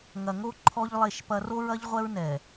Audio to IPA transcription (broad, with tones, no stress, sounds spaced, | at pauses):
ŋ ɐ˨ ŋ o˦ ǃʰ ɔ˦ ʎ lˠ e˦˨ ʃ p ɐ˦ r o˦ ɹ ɐ˦ ʎ ʁʷ ɛ˦ ɹ n ɛ˨